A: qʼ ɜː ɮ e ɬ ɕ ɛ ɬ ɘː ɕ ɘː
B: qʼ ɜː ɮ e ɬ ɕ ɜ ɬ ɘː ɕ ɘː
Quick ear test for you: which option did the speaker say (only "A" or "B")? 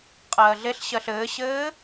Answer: B